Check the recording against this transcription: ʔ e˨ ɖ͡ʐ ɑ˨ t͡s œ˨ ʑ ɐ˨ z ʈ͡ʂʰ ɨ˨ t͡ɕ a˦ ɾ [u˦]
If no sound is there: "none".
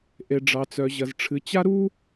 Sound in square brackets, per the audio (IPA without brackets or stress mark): u˦